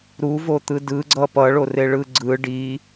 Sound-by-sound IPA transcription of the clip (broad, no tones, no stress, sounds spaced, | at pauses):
ɾ u v o t̪ ɯ d ɯ ɡ͡ǀ ʌ p ʌ ɭ o r e ɭ ɯ ɡ͡ǀ ɯ ɖ i